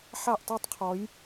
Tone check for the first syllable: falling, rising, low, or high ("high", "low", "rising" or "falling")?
falling